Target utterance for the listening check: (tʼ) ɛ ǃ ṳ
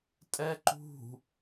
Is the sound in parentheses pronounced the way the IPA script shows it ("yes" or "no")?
yes